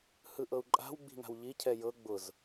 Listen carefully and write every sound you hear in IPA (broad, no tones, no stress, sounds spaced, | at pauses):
h ɯ ʔ ɤ u̯ ǃʼ a̤ w ɡ͡b i̤ ŋ a̤ w ʎ i cʰ ɛ j ɤ ɡ͡b ʊ z